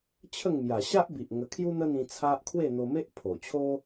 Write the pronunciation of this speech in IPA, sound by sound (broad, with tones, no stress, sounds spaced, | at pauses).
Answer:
t͡ɕʰ ə˥˧ ŋ m j a˨˩ ɕ a˦ ʔ b i˨ ʔ ŋ ə˧ kʰ j u˦ n̪ ə˦ n̪ ĩ˧ t͡sʰ a˦ ʔ kʰ w e˥˧ n̪ o˧ m e˦ ʔ pʰ o˨˩ t͡ɕʰ o˦